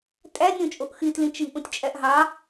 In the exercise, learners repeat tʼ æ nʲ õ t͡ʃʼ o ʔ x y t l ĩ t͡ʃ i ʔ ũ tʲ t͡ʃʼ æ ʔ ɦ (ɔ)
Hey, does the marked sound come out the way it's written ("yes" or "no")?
no